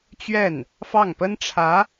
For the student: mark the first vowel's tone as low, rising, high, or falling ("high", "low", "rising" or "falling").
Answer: falling